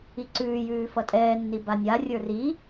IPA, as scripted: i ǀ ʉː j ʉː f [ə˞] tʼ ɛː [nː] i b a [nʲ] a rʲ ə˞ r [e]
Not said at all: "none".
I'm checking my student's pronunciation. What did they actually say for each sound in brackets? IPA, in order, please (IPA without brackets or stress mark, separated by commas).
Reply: ʌ, nː, nʲ, i